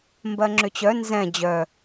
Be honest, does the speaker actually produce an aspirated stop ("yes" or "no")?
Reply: no